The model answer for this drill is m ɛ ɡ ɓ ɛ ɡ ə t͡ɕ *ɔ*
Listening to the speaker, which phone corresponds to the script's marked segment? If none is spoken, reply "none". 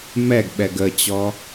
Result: ɔ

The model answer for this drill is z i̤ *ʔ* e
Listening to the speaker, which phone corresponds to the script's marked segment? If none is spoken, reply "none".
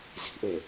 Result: ʔ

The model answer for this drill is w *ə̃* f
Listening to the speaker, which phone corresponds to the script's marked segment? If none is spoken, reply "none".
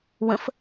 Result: ə̃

